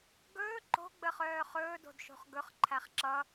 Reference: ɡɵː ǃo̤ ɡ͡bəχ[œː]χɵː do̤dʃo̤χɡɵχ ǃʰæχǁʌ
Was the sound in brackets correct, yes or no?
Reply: yes